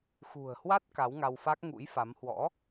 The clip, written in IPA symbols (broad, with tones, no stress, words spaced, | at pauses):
xṳ˨˩ə̯hwa˦˥t̚ ka˨˦wŋa˧wfa˦˥k̚ ŋṵ˧˥jfa˨˦m hwɔ̰˧˥